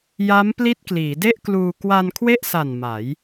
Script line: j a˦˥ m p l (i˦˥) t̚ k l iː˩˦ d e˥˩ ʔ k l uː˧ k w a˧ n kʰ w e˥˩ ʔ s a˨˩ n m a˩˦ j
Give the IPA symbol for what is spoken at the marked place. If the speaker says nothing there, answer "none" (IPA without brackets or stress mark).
i˦˥